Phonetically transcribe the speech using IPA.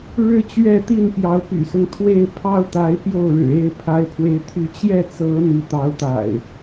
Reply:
ɻ ɻ̩˦ t͡ɕ ɥ ɛ˥˨ t̪ i˥˨ n p j ɑ˨˦ ʊ̯ p y̰˨˩ s ʊ˦ ŋ t̪ʰ w e˥˨ ɪ̯ pʰ ɑ˦ ʊ̯ t̪ a˨˦ ɪ̯ p j o˥˨ ʊ̯ ɻ ɻ̩˨˩ e˥˨ ɪ̯ pʰ a˨˦ ɪ̯ pʰ w e˨˦ ɪ̯ t̪ʰ y˨˦ t͡ɕ j ɛ˥˨ t͡s ɤ˨˦ n̪ i˨˦ t̪ ɑ˨˦ ʊ̯ t̪ a̰˨˩ ɪ̯

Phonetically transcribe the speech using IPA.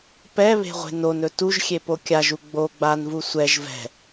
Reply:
p ɛ β e̤ ʁʷ e̤ n o n ɵ t u ʒ xʲ e p o kʲ a ʒ u ɡ͡b o ɡ͡b a n v u sʷ ɛ ʒ v ɛ̤

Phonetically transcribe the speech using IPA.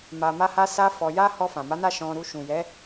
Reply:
m a˧ m a˦ h a˦ s a˦ f ɔ˧ j a˦ h ɔ˧ f ã˨ m a˨˦ n a˦˨ ʃ ɔ̃˧ ɾ u˧ ʃ ũ˨ j ɛ˨˦

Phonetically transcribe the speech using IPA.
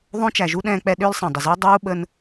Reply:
ðˤ õ˦ t͡ʃ æ˨ ʒ u˦ ɗ ɛ̃ː˦ k͡p ɛ˦ ɗ ʏː˦ l sˤ ɛ̃˩ dˤ ə˩ z ʏː˥ dˤ uː˥ ɓ ə˦ n

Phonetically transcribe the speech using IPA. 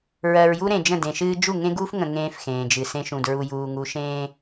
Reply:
ɹ ɜ˨ ɹ j u˦ ɾ ẽ˨ d͡ʒ ə̃˦˨ d ẽ˨ ʃ ɨː˦ d͡ʒ u˦˨ ŋ ẽ˦ ɡ uː˦ f ŋ ə̃˨ ŋ ẽː˦ f x ẽː˨ d͡ʒ ɨ˨ s ẽ˦ ʃ ũ˨ d ɹ u˨ j uː˨ ŋ u˨ ʃ ẽː˦

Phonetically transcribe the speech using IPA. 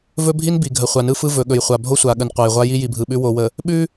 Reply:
v ɵ˦ bʱ i˦ n b i˨ ɡʱ ə˨ χʷ a˨ n ɯ˦ f ɯ˦ v ɵ˨ ɠ ɵ˨ j χʷ a˨ bʱ o˦ sʷ a˨ ɠ ə˨ n qʷ a˨ j ʁʷ a˦ j i˦ j i˨ bʱ ɯ˨ ɓ ʉ˦ w o˨ w ə˨ | ɓ ʉ˦

